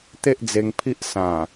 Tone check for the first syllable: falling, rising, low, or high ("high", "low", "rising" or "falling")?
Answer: high